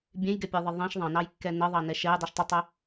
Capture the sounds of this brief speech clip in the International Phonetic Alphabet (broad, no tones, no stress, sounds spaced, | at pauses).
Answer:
bʲ ẽ j ɡ ɛ pʲ ɜ ðˤ ɘ ðˤ ẽ ʃ ðˤ ɑ̃ n ɑ j kː ɛ n ɘ ðˤ ɑ n ɛ ʃ ɛ j dˤ i ʃ tˤ ə tˤ ɛ